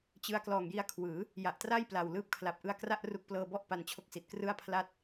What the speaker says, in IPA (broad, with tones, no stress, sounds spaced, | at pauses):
t͡ɕ ɯ˦˥ a̯ k l ɔː˨˩ ŋ j i˦˥ a̯ kʰ w ɯː˩˦ | j a˨˩ ʔ t r a˥˩ j p l a˨˩ w l ɯː˦˥ p̚ kʰ l a˨˩ p̚ ʔ ɯ˦˥ a̯ k r a˥˩ ʔ r u˦˥ k̚ p l ɤː˧ b ɔ˥˩ ʔ p a˧ n t͡ɕʰ o˥˩ k̚ s i˨˩ t̚ k r ɯ˥˩ a̯ pʰ l a˥˩ t̚